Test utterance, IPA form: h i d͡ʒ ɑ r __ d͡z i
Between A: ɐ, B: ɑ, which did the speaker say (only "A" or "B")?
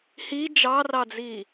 B